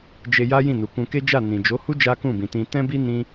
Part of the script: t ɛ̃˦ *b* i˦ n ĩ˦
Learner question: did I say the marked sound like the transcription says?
yes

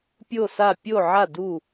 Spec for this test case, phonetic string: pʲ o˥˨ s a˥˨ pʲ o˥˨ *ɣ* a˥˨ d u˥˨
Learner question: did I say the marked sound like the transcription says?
no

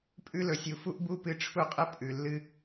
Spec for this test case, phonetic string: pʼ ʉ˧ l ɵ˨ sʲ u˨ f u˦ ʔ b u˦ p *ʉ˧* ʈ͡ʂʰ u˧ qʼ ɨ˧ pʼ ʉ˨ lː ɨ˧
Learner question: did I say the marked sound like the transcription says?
no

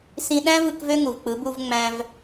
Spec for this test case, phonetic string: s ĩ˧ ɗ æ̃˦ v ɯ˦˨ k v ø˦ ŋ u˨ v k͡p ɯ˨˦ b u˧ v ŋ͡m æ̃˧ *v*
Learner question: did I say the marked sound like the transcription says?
yes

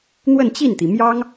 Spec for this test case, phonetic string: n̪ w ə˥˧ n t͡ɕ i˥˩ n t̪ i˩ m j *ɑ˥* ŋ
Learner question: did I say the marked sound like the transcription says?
yes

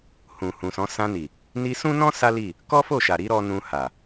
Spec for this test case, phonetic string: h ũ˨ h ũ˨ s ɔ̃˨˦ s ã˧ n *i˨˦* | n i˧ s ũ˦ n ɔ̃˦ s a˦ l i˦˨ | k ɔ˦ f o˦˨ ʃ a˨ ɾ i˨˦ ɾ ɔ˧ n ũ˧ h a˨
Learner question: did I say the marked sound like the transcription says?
no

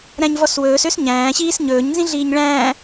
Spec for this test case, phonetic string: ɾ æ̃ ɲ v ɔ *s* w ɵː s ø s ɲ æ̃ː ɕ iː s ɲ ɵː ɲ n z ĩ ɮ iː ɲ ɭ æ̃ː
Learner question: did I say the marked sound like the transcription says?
yes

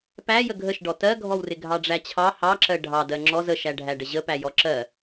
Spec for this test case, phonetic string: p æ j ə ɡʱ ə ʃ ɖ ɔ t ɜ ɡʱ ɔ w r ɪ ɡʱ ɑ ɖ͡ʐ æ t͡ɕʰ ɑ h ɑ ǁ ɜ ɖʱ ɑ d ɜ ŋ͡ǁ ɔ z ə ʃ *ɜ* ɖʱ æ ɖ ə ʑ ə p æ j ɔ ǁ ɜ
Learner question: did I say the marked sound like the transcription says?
no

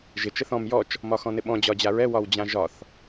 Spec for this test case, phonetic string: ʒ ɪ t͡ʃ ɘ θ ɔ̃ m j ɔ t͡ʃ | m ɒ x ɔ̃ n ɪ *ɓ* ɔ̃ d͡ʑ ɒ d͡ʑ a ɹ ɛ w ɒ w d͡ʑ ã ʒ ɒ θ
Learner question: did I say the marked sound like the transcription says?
yes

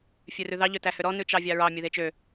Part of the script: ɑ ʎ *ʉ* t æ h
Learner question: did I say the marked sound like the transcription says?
no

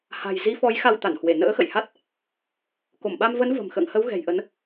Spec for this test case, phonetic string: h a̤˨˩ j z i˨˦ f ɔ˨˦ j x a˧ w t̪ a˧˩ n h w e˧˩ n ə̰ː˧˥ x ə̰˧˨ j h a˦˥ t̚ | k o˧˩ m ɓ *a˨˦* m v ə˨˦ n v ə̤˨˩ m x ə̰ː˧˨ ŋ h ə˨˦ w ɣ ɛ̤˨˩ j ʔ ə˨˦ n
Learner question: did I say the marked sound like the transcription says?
no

